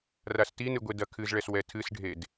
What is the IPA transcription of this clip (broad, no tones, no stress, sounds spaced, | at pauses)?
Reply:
r a s t i n ɨ ɡʷ e d ɐ kʰ ɨ z ɭ ɛ s w ɛ tʰ ɨ s ɖʱ e d